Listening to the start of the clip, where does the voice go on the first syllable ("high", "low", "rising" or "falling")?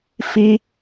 high